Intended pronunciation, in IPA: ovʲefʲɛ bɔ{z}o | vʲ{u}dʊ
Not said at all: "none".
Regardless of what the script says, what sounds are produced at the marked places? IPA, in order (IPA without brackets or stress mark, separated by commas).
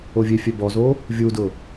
z, u